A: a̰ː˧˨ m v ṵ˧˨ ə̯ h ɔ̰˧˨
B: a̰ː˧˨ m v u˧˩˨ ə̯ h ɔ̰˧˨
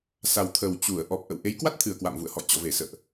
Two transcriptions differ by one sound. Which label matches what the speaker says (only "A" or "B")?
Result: A